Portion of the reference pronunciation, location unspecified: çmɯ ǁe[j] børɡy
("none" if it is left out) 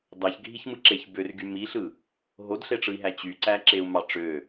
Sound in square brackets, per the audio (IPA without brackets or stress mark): ç